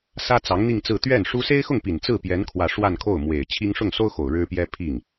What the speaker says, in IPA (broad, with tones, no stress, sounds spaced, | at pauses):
s ä˥ t͡s ɑ˧˥ ŋ n̪ i˥˧ ŋ t͡s ɹ̩˥˧ t̪ ɥ ɛ˥˩ n ʂ u˥ s e˥ ɪ̯ x ʊ˥˩ ŋ p i˨˩ n t͡s ɹ̩˥˩ p j ɛ˧˥ n kʰ w ä˥˧ ʂ w a˥˧ n kʰ o˥˩ ʊ̯ m w e˨˩ ɪ̯ t͡ɕʰ i˥ ŋ ʂ ʊ˥˩ ŋ s o˥ ʊ̯ x o˨˩ ʊ̯ ɻ ɻ̩˥ p j ɛ˥ pʰ i˥˩ ŋ